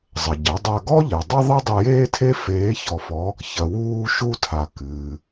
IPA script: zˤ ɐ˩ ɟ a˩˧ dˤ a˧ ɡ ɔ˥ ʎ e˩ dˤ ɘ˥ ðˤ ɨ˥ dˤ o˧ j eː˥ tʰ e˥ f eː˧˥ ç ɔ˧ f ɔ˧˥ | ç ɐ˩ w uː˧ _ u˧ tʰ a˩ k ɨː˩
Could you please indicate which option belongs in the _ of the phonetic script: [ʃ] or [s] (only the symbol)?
ʃ